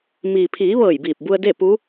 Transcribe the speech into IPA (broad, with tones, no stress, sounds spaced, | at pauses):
m iː˩ pʰ iː˩˧ ʋ ɤː˧˩ j b iː˧˩ p̚ b u˧ ə̯ d e˥˨ p u˧˥